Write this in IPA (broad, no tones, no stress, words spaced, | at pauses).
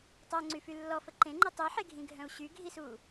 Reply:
tˤœŋ͡ǀyfy lːɔfə ǃẽŋ͡ǃə tˤiħeɡʱĩɡʱœ̃u̯ ɕyɡʱisu